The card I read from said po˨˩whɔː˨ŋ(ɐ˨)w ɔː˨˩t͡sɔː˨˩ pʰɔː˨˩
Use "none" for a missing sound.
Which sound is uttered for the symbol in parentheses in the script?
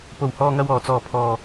ɐ˨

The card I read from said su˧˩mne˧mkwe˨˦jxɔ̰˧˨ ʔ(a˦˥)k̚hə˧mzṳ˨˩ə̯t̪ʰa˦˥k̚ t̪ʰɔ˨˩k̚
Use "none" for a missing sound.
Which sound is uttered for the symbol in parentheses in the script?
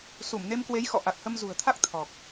a˨˩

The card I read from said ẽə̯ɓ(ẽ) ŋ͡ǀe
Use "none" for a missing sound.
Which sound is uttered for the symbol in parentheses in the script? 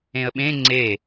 ẽ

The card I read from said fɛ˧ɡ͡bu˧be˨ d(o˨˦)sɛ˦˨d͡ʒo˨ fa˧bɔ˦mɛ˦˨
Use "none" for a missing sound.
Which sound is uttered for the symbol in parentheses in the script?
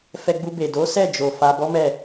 o˨˦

